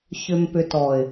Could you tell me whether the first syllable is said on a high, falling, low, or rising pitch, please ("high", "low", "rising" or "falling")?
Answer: low